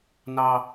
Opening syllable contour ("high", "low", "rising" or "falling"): high